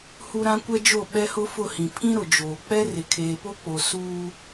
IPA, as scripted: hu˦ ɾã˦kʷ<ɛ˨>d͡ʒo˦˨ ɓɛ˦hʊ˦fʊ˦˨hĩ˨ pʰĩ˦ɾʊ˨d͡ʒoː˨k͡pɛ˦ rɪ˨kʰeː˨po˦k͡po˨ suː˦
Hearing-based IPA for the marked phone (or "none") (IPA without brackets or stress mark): ɛ˦